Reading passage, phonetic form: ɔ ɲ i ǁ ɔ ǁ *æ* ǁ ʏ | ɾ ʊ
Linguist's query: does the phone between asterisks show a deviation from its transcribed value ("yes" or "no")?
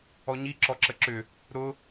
yes